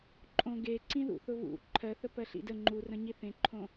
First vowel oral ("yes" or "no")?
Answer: no